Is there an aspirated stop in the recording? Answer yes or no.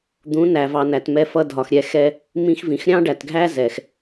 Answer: no